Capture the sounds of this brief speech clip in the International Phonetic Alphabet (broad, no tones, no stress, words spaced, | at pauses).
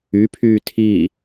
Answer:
ypʰyː tʰi